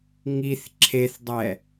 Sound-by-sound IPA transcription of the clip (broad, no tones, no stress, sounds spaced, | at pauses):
ŋ i θ ǁʰ e θ dˤ ɛ